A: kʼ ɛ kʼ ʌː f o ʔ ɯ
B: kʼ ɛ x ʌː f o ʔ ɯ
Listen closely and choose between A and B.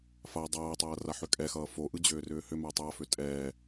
B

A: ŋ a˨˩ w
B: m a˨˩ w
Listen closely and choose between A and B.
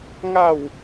A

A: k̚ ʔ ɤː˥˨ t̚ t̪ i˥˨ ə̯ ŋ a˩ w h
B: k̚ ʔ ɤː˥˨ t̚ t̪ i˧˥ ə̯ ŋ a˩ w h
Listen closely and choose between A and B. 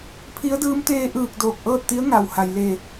B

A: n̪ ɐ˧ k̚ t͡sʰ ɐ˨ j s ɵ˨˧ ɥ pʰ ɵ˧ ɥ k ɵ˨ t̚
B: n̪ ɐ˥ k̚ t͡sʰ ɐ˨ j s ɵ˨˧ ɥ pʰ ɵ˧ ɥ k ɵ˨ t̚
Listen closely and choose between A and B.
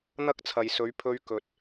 B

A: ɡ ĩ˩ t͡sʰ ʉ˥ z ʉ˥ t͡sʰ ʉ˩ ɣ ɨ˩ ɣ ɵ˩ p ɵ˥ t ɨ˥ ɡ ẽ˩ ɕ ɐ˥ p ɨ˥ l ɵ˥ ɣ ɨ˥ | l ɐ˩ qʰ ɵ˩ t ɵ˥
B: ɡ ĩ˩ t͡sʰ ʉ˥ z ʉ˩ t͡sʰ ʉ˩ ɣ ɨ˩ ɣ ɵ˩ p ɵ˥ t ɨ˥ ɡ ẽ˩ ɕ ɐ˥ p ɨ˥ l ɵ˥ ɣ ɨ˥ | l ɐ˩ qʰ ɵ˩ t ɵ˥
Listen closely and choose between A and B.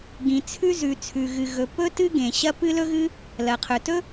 B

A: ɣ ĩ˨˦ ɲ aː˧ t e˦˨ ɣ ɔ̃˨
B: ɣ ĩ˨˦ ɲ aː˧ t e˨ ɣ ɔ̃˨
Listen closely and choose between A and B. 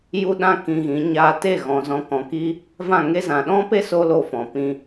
A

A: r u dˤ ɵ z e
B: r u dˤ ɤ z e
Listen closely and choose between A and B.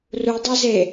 B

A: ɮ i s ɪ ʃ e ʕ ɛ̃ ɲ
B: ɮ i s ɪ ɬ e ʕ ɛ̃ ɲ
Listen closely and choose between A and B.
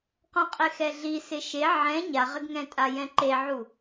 A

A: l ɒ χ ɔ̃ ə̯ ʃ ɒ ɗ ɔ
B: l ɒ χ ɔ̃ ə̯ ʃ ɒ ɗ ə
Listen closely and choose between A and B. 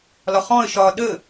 B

